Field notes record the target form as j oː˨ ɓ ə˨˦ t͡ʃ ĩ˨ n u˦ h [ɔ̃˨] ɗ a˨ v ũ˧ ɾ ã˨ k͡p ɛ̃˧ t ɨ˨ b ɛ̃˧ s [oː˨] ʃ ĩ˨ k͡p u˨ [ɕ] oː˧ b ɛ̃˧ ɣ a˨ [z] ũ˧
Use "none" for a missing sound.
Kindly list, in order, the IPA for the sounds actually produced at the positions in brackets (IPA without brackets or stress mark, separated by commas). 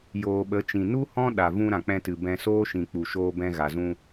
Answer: ɔ̃˦, oː˦, ʃ, z